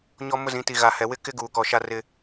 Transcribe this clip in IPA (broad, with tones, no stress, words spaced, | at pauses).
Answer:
ɲɔ˦mʊ˦zĩ˨˦ ti˨ɣa˨hɛ˨wɪ˦ kɪ˦ ɡuː˨kɔ˨ ʃa˦rɪ˦